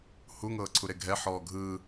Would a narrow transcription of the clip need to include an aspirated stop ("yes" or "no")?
yes